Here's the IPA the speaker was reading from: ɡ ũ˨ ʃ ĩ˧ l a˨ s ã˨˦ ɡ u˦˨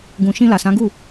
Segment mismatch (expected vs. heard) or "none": none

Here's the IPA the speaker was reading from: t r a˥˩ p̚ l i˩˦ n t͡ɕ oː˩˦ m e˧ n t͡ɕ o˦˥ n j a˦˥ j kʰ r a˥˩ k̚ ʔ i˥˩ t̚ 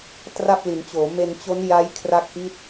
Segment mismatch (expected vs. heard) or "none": none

